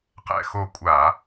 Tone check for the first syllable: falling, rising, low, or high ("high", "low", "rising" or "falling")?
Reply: falling